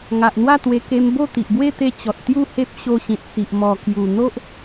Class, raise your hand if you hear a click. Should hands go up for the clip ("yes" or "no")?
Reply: no